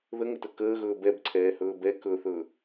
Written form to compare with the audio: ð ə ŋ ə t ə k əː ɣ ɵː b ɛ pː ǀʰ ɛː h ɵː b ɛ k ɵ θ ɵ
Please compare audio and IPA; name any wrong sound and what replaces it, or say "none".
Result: pː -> b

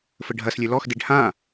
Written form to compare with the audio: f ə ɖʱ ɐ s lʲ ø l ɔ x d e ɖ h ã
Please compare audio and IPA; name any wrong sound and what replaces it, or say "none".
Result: none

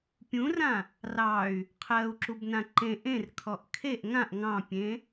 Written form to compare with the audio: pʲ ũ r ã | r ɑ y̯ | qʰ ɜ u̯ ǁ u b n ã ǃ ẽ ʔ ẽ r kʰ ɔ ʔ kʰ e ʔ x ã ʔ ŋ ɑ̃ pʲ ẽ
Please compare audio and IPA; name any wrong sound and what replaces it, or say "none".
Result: x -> ŋ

